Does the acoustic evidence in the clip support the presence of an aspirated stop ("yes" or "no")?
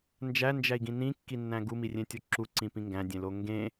no